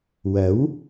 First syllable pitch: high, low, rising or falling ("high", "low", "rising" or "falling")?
rising